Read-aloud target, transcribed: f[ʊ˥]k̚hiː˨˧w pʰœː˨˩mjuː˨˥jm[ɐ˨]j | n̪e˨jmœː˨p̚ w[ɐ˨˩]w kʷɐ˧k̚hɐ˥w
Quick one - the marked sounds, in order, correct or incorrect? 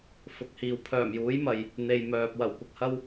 incorrect, correct, correct

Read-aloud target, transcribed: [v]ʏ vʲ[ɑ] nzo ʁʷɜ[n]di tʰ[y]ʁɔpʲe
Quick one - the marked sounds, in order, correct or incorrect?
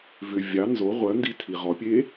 correct, correct, correct, incorrect

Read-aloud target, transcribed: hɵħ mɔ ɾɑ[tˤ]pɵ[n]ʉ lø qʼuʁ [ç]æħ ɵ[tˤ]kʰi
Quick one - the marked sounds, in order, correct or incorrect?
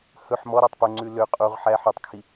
correct, incorrect, incorrect, correct

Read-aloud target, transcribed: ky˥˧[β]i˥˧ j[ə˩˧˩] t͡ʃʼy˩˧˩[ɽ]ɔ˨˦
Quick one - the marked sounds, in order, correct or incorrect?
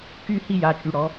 incorrect, incorrect, correct

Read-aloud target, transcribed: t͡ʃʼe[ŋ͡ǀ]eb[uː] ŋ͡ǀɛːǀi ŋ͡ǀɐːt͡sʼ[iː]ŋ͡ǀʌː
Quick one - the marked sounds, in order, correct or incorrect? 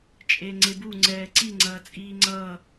correct, incorrect, correct

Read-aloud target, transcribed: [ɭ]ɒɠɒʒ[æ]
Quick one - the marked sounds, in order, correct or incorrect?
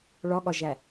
correct, correct

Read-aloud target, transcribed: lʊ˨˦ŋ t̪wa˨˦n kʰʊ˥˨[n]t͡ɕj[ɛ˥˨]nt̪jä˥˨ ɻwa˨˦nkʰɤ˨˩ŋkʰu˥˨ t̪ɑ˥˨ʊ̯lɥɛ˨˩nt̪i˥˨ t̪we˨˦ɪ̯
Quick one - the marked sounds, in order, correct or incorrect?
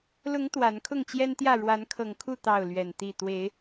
incorrect, incorrect

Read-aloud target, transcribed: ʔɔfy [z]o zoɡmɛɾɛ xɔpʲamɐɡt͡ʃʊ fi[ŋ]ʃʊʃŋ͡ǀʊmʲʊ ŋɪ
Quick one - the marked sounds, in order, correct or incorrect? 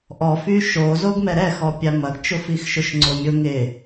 incorrect, incorrect

